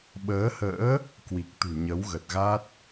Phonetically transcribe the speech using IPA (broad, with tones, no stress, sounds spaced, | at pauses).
ɓ əː˨˦ h ə̰ː˧˥ | k w i˨˩ k̚ t̪ ṳ˨˩ ɲ ə˨˦ w ɣ ə˨˩ t̚ ɣ a˦˥ t̚